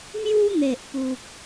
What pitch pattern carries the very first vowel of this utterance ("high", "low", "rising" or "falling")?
high